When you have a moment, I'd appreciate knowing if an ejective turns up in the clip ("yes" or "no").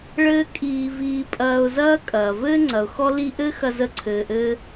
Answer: yes